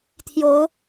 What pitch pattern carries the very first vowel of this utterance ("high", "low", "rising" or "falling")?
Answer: rising